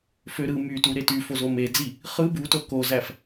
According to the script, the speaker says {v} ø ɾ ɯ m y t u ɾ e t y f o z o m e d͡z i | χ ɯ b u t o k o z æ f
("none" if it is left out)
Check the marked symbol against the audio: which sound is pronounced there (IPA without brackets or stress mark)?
f